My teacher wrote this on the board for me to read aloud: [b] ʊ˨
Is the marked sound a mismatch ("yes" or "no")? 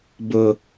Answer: no